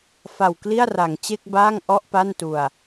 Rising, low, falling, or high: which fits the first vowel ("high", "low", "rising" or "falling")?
low